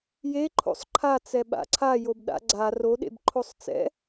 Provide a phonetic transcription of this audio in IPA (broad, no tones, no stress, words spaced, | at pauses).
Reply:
jeǃʰo̰sˤ ǃʰat͡sɛ ɓa̰ǀʰajob ɗa̰ɡ͡ǀa roɗḛb ǃʰosˤt͡sɛ̰